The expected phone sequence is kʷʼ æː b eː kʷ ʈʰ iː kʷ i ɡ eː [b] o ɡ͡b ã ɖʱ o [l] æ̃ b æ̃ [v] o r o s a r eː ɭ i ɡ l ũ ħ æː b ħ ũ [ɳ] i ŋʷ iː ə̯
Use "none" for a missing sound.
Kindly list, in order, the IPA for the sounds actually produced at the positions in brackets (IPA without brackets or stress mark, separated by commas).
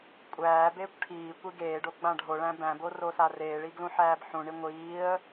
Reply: ɖ, ɭ, b, ɳ